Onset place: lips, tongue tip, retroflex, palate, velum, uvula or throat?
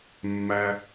lips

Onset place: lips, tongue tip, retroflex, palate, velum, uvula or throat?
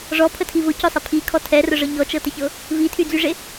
retroflex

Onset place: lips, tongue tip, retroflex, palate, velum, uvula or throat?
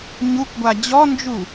palate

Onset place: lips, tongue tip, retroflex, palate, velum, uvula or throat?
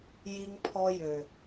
palate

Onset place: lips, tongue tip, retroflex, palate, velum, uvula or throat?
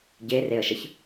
palate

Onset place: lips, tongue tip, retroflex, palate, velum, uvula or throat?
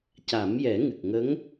palate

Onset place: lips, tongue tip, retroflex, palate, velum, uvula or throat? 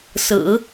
tongue tip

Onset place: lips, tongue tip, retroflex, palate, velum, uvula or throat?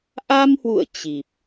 throat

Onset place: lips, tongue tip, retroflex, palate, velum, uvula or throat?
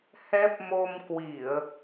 throat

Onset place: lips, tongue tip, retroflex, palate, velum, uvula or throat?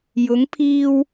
palate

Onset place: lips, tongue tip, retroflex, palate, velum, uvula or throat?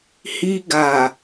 throat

